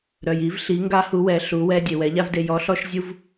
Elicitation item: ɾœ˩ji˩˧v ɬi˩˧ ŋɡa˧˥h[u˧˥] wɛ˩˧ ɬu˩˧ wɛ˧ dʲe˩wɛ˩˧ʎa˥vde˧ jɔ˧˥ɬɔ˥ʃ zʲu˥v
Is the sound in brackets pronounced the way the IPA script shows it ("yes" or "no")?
no